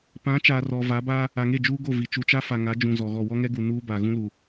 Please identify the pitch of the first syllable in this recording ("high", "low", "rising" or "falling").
rising